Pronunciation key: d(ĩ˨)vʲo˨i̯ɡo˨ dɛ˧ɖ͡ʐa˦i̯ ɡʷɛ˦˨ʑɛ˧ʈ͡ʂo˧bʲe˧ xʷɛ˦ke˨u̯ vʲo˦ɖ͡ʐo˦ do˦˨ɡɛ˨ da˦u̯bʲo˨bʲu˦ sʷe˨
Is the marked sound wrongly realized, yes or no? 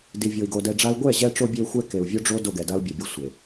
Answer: yes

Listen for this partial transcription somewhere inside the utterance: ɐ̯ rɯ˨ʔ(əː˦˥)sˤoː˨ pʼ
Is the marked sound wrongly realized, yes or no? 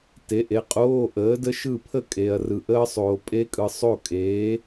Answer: no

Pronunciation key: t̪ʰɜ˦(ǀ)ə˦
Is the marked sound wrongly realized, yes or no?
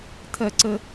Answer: no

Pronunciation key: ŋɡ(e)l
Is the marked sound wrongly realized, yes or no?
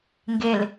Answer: no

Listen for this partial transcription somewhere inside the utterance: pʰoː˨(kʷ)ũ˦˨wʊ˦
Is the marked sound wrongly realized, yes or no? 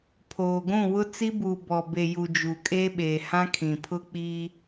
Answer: yes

